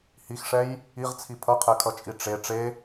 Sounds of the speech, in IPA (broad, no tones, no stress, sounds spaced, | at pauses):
h i x ʂ ɛ j | i ʁ t͡sʰ i pʰ ʌ qʰ ɛ kʰ ʌ t͡ʃʼ i ʈ͡ʂ e ʈ͡ʂ e